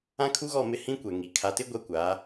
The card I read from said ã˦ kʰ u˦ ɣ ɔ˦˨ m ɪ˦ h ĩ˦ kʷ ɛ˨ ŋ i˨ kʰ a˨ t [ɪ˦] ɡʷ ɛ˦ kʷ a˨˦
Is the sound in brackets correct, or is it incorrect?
correct